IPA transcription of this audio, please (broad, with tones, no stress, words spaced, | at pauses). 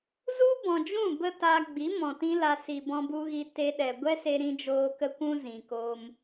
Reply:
zu˦bɔ̃˨d͡ʒũ˦˨ bə˦ta˧ɡ͡bi˨˦ mɔ̃˨tĩ˦la˧ si˨bɔ̃˧bu˧ɣi˧ te˧ɗɛ˨ ɡʷɛ˦se˧ɾĩ˧d͡ʒoː˧ kə˦kʷũ˦ zĩ˨koː˧m